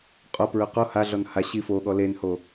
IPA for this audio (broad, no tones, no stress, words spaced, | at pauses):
qʼopɹɵ qo haɮɔn ha ɕifoɠɔ lenho